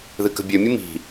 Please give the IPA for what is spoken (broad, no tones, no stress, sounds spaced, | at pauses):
ð ɨ k ə̤ bʲ ø mʲ ɨ m i̤